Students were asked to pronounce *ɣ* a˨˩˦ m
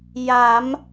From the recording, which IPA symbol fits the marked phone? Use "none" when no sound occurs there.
j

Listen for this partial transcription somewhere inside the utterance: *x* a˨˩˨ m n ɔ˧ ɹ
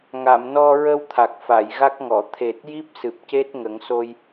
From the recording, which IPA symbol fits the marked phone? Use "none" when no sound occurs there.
ŋ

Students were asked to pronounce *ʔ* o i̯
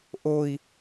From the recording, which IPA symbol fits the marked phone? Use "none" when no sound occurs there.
ʔ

